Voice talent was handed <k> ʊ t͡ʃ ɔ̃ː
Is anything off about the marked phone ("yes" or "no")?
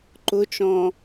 yes